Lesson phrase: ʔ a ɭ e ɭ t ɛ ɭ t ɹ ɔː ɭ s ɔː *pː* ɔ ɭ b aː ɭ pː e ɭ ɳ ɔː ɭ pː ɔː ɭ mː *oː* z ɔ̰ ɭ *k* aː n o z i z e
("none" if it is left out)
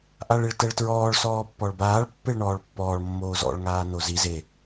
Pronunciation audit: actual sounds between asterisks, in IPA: pː, oː, ŋ

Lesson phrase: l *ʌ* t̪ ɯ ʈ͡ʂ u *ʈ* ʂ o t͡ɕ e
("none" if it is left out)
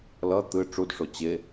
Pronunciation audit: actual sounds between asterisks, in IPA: ʌ, d

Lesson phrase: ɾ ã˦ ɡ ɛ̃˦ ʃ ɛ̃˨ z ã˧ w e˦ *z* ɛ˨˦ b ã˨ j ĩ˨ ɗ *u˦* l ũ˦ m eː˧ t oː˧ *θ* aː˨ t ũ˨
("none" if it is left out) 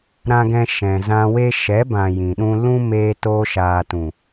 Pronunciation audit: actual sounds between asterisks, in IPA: ʃ, ũ˦, ʃ

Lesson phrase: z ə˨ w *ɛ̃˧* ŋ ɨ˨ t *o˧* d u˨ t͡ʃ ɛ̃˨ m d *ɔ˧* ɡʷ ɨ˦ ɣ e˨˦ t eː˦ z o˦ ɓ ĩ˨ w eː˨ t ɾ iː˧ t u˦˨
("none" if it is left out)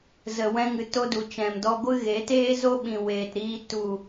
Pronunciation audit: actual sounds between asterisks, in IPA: ɛ̃˧, o˧, ɔ˧

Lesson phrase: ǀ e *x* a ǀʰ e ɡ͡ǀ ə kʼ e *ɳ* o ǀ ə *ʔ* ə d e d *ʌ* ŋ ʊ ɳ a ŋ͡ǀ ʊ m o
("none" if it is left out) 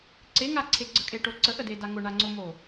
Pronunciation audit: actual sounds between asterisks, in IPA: ŋ, ʈ, ʔ, a

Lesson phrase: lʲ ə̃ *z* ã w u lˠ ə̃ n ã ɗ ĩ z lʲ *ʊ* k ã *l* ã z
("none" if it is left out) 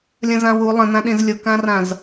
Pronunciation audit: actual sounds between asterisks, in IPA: z, ʊ, r

